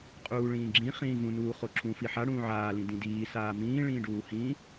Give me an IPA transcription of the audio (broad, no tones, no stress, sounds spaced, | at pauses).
qʼ uː ɭ ĩː ɡ͡ǁ ĩ χ ĩː v ũ n uː χ o ǁ ũ f i ħ a ɽ ũː ʕ aː l ĩ d ĩ d iː s aː m ĩː ɭ ĩː ɖ uː h ĩ